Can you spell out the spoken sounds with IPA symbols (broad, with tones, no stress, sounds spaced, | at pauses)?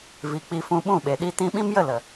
v i˨ k͡p i˧ f ũ˧ ɓ ũ˦˨ ɓ e˨ ɗ i˦ t ĩ˦ ɓ ĩ˦ m j ə˦˨ l ə˨